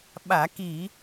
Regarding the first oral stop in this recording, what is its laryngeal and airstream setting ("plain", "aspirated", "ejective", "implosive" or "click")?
implosive